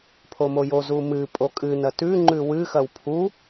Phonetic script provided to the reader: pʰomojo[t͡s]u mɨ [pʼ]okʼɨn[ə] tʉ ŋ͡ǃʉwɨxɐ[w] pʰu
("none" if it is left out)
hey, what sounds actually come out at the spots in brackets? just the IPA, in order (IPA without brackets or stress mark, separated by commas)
z, pʼ, ɐ, w